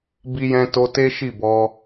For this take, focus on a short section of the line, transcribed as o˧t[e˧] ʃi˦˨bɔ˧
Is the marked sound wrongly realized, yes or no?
yes